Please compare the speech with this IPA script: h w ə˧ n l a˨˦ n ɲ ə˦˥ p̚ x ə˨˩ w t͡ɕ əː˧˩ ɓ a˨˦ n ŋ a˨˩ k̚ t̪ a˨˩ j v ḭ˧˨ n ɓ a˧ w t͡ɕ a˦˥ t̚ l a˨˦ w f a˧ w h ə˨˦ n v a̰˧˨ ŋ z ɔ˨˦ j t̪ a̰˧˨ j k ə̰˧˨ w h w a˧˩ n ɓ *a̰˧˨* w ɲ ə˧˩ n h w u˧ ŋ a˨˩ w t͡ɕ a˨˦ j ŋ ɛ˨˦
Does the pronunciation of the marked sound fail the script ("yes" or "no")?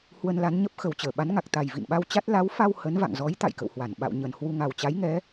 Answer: no